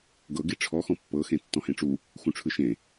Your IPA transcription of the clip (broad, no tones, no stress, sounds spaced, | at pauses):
ɡ ɤ ɡ i ʈ͡ʂʰ ɔ x ɔ̃ pː ɤ x ẽ tː ɔ̃ h ẽ ʈ͡ʂ u | x ũ ʈ͡ʂʰ ɯ ʃ ẽ